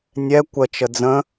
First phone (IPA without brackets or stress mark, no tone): nʲ